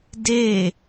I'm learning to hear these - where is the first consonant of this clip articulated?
tongue tip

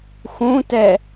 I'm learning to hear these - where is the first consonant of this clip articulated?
velum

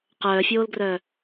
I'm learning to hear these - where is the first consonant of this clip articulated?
uvula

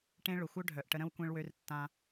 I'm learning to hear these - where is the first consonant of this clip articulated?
retroflex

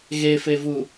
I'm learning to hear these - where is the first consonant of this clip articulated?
velum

